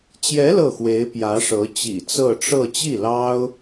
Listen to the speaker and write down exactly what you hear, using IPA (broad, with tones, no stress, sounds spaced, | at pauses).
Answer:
t͡ɕ j ɛ˧˥ l ɤ˥˩ x w e˧˥ ɪ̯ p j ä˧˥ ʂ ɤ˧˥ t͡ɕ ḭ˨˩ t͡s ɤ˥˧ ʈ͡ʂ ɤ˥˧ t͡ɕ i˥˩ l ɑ˥ ʊ̯